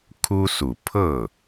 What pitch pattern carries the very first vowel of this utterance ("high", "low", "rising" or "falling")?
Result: high